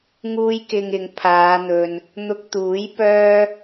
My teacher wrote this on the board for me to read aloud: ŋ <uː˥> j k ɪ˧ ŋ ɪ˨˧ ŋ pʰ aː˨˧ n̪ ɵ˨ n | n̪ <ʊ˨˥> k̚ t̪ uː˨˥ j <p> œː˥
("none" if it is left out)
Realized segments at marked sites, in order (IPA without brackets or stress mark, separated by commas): uː˥, ʊ˧, p